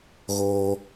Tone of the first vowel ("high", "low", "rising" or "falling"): high